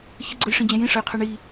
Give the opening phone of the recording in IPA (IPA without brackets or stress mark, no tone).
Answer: ç